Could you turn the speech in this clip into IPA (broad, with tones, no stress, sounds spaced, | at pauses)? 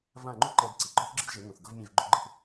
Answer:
v ã˦˨ ŋ͡ǃ u˦ ǃ ɛ˧ d ǀ i˨ ɡ͡ǃ ɔ˦ θ ɡ͡ǁ ɯ˦ d ʒ e˨˦ ŋ ũ˨ θ ɡ ɤ˦ v mʲ ẽ˦˨ v ɡ͡ǃ o˦ ɡ͡ǃ ɯ˦ θ